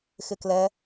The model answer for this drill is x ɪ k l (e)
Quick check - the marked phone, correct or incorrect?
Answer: incorrect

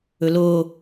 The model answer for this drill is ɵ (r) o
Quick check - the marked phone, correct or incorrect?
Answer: incorrect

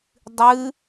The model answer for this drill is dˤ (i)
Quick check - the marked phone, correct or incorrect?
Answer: incorrect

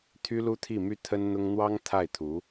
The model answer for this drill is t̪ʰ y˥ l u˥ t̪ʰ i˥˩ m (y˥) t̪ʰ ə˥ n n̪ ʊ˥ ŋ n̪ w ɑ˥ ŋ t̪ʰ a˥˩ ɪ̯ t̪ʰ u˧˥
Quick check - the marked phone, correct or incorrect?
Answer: correct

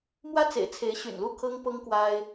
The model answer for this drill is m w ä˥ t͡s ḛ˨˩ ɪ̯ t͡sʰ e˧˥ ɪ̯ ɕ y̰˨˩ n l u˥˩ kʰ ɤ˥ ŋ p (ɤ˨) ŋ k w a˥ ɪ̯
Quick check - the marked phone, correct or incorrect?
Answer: incorrect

